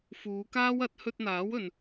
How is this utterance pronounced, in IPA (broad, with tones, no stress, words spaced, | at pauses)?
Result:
fuː˨˧kaː˥w ɐ˨˥t̚ hɵ˧t̚n̪aː˨˥wɵ˨n